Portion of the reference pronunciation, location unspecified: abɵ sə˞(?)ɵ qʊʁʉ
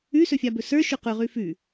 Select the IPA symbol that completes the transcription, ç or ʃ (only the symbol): ʃ